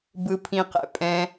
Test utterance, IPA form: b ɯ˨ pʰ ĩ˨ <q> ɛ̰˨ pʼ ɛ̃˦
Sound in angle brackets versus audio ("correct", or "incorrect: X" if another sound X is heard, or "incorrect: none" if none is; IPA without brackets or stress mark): correct